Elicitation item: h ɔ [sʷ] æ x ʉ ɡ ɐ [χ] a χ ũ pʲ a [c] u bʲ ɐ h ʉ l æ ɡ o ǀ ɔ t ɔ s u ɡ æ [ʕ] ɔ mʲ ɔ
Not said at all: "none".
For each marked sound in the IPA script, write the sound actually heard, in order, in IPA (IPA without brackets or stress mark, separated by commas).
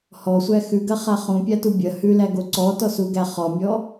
sʷ, χ, t, χ